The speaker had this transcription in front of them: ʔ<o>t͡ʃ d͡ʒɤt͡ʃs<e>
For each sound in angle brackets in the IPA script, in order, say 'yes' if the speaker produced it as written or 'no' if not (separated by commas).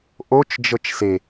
yes, yes